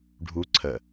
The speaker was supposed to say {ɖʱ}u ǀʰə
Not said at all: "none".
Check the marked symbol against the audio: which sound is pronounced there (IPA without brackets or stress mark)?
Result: ɖʱ